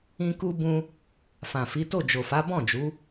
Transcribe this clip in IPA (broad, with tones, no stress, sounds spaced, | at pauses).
ĩ˦ k u˦ b ũ˦ | f ã˨ f i˨˦ t o˦˨ d͡ʒ o˨ f a˨˦ b ɔ̃˦˨ d͡ʒ u˨˦